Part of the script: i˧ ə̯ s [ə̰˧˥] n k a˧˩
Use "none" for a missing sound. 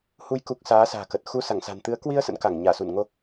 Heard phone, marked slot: ə̰˧˥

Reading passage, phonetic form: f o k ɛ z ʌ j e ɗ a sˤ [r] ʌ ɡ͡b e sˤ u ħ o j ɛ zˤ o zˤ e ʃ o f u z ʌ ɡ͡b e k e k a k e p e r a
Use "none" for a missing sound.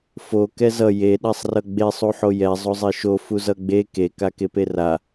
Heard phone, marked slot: r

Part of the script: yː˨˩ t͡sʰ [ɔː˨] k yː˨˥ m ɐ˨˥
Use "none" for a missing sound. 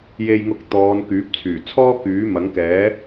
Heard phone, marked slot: ɔː˥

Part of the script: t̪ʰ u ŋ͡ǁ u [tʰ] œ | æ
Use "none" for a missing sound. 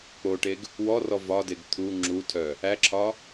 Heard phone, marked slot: tʰ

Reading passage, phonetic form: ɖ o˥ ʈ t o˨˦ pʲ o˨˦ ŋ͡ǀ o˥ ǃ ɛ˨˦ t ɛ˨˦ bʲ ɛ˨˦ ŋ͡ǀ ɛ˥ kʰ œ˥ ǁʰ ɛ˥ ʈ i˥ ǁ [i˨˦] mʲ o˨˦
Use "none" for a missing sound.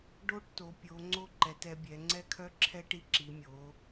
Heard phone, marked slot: i˨˦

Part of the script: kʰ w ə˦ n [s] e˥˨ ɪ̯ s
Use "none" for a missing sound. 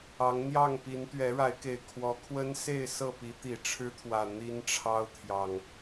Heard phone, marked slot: s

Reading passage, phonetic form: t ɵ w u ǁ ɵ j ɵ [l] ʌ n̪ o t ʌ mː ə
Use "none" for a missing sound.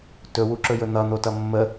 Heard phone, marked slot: n̪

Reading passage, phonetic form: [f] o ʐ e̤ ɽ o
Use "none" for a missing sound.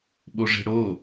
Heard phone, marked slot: ɓ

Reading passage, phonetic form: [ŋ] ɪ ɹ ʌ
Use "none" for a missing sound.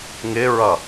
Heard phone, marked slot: ŋ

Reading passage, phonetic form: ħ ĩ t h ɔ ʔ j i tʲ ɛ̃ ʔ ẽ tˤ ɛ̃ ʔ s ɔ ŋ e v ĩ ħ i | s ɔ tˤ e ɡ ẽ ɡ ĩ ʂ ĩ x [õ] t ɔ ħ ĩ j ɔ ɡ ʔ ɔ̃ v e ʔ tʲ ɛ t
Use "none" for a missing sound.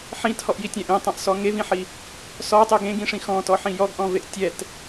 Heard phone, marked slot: ɔ̃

